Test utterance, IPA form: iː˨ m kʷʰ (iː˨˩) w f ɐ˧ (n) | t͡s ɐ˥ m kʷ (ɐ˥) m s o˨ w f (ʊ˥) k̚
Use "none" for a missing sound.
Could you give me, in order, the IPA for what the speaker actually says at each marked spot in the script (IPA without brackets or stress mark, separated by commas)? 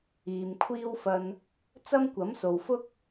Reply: iː˥, n, ɐ˨˥, ʊ˥